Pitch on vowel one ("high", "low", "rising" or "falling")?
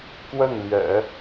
falling